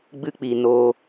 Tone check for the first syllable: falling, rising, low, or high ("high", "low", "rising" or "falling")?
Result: high